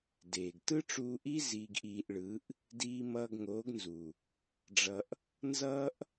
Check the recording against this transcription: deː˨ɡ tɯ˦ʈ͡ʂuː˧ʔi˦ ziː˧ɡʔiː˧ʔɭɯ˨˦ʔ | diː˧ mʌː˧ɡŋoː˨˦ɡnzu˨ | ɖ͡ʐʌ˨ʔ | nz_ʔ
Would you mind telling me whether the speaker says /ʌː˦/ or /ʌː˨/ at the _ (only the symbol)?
ʌː˦